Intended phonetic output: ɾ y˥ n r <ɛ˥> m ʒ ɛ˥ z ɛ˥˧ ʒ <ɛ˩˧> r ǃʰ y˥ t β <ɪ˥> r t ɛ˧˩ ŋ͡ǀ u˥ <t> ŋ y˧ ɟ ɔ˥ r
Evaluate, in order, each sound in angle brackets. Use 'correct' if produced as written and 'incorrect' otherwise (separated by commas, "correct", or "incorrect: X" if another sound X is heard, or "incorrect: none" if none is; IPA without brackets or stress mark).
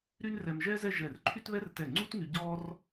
incorrect: ɛ˧, incorrect: ɛ˧˩, incorrect: ɛ˥, correct